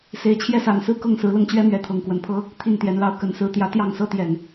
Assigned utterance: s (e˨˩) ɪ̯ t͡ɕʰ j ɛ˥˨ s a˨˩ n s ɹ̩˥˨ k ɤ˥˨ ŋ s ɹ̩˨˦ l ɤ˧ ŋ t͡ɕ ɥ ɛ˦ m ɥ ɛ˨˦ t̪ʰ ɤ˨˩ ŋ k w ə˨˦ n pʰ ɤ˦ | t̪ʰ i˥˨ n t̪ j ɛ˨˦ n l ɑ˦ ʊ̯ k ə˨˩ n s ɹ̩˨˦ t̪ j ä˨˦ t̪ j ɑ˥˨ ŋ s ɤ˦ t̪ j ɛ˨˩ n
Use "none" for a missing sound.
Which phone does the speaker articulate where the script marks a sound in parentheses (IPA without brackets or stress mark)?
e˨˩